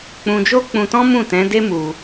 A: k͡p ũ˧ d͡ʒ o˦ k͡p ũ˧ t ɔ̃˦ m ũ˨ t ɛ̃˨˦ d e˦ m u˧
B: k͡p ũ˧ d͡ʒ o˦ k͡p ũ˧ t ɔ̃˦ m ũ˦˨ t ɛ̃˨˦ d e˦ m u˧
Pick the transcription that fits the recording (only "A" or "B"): B